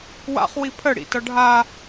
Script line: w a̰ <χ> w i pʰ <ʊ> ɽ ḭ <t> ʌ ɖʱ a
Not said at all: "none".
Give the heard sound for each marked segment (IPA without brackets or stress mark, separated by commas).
χ, ə, t